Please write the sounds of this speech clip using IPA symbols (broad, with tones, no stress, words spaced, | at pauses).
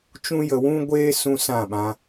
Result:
t͡ʃũ˦jə˧wũ˦ɡʷeː˦ sũ˦sã˦˨ɓã˧